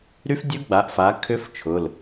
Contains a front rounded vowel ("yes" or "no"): yes